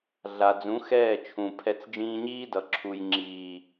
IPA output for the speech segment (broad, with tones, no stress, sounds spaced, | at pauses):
ɮ a˨ d͡z ũ˨˦ x ɛː˦˨ t͡ʃʰ ũ˨ pʰ ɛ˧ t͡s d͡ʒ ĩː˧ ɲ iː˦ d ʌ˨ ǁʰ u˨ j ŋ͡ǁ iː˨